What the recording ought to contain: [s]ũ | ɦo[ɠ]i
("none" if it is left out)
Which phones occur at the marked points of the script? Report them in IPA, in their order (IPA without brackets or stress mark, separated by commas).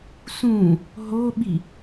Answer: s, ɓ